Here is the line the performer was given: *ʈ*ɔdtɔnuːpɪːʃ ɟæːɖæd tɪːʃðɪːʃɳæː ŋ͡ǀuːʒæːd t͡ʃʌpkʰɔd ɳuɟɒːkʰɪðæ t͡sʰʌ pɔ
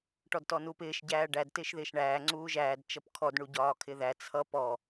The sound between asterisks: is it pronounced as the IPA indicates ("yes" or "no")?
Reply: yes